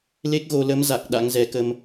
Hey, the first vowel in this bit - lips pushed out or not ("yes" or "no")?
no